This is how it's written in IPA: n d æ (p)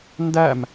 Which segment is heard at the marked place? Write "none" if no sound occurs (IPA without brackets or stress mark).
m